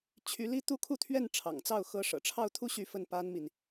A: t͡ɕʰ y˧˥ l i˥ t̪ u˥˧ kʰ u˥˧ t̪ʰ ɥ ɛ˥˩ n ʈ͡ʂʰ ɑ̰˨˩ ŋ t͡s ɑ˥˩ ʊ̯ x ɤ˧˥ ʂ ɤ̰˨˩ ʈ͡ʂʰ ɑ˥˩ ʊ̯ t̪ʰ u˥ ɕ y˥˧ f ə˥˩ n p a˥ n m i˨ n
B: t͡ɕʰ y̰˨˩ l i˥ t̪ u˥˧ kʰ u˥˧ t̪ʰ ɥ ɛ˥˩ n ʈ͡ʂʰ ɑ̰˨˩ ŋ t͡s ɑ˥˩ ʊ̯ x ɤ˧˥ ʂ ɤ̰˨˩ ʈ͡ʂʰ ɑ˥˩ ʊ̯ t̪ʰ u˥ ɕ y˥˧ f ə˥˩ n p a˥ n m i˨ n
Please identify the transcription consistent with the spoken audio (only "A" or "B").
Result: A